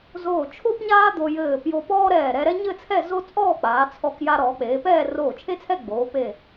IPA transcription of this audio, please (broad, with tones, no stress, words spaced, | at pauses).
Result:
zoː˧˩ t͡ʃʰo˥pɲaː˥ d̪o˧jɘː˧˩ pjo˧pɔː˥ɾɛː˧˩ ɾɛ˧ɾɛ˥ɲɘ˥˧t͡sʰɛ˥˧ zo˥ t͡sʼɔː˥˧k͡paː˩˧t͡sʰɔ˧˩k ja˧ ɾɔː˩˧k͡peː˩˧pɛː˥˧ roː˧˩t͡ʃʰe˥t͡sʰɛ˥˧ ɡ͡boː˩˧pe˧˩